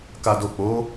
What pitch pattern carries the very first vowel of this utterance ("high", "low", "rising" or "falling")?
low